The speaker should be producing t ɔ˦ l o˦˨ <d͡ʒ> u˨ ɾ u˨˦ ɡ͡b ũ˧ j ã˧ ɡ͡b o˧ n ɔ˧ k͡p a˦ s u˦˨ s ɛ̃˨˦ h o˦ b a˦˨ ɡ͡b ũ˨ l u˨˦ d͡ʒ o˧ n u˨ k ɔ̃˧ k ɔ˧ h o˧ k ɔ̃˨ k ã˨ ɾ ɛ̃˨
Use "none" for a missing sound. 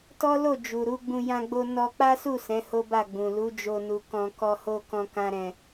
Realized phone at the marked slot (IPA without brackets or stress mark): d͡ʒ